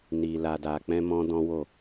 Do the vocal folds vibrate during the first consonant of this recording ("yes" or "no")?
yes